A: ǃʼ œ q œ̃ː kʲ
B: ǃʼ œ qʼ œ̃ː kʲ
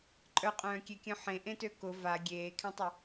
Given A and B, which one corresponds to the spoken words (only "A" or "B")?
B